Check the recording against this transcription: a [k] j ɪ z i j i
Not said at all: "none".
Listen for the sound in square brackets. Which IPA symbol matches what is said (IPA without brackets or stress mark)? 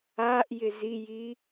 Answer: ʔ